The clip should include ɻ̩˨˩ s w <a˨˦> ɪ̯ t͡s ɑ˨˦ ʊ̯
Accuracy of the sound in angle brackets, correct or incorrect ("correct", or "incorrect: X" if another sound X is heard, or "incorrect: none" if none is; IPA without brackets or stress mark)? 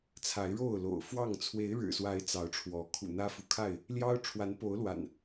correct